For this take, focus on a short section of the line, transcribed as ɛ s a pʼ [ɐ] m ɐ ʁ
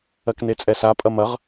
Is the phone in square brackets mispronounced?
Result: no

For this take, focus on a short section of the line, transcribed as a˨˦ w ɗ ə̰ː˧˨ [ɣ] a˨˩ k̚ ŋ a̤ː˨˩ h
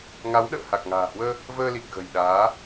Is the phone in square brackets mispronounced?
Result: yes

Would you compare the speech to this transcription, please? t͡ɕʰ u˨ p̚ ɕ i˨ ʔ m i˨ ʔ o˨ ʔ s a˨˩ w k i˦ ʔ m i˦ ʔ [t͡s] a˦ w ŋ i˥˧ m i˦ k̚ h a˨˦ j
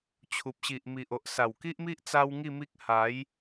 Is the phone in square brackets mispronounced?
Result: no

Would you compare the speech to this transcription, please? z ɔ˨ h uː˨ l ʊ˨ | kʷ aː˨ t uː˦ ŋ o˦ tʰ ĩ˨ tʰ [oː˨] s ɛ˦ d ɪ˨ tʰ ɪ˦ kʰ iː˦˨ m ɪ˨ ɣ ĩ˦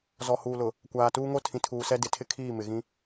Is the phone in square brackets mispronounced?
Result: yes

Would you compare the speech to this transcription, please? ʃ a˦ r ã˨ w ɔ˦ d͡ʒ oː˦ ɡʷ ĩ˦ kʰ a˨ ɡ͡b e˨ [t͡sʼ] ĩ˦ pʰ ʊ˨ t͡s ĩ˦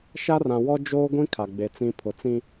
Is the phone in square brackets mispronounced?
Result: yes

